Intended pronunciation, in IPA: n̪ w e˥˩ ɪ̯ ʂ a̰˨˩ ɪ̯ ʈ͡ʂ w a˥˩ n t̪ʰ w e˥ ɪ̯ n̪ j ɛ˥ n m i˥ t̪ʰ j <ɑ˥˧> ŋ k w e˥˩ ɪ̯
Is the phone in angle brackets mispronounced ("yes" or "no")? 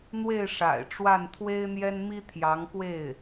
yes